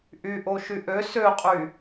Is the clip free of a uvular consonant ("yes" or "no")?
no